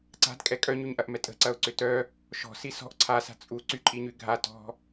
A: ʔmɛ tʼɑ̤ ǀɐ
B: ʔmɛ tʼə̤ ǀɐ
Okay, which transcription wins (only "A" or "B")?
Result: B